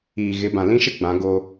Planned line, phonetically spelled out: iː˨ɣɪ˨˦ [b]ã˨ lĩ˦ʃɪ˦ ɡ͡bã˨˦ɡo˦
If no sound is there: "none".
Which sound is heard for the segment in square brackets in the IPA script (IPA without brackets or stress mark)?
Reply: b